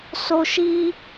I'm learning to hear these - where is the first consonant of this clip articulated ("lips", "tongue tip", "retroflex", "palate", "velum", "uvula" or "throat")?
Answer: tongue tip